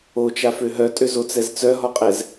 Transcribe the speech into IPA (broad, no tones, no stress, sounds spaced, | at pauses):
o t͡ʃ a f ø ɦ œ tʼ ø z o t͡s ɛ z t͡s œ ɦ ɔ qʼ ɛ z